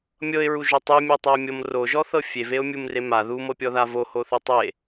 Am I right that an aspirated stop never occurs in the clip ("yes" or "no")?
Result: yes